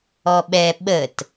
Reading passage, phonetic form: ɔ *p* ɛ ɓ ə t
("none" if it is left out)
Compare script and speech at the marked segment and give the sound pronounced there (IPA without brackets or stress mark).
ɓ